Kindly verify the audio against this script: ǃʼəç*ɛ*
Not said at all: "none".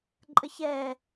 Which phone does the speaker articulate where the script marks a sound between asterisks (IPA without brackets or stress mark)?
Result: ɛ